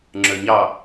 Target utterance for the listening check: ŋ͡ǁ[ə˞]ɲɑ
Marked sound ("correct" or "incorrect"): correct